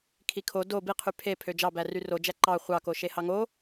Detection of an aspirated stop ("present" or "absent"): present